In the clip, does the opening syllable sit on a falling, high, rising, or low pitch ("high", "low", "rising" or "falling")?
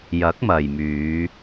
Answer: rising